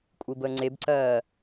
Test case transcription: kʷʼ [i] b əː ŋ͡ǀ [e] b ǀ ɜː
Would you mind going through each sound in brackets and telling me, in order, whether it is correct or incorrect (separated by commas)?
correct, correct